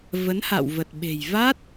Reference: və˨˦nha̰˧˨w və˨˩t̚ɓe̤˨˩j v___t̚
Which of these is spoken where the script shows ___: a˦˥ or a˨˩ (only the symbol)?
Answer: a˦˥